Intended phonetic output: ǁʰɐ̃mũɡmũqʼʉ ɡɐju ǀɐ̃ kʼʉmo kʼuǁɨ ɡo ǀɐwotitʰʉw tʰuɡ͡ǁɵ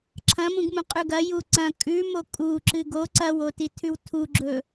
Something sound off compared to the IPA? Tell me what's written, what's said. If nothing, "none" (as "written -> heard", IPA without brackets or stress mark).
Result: none